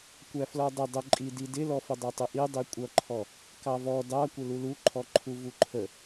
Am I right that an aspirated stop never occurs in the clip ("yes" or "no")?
no